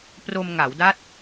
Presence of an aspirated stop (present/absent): absent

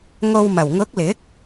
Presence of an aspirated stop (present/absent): absent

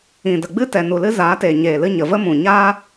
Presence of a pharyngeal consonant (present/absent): absent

